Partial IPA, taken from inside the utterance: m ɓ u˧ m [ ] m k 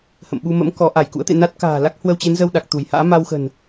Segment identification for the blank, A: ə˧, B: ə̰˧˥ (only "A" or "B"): B